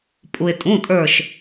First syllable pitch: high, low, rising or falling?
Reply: low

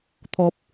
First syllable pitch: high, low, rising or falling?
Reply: low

